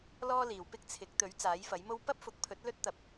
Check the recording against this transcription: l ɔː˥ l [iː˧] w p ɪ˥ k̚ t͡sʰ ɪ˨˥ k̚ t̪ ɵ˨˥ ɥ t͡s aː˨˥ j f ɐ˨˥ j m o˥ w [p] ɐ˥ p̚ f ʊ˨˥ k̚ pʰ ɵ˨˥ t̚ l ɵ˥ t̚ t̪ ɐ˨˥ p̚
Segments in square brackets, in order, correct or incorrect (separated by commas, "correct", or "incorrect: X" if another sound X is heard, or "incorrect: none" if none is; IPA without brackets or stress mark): incorrect: iː˨, correct